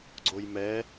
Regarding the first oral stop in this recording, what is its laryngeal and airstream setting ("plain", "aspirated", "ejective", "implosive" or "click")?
click